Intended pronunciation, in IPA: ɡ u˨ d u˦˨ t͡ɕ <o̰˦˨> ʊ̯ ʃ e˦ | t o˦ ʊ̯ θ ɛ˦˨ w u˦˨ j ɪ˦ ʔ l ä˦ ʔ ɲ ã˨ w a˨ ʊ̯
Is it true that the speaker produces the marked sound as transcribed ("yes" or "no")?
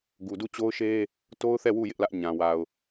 no